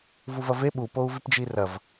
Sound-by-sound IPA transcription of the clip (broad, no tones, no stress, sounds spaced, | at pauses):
v u v ɐ v e ɓ u p o u̯ v i p d͡ʒ i r ɐ v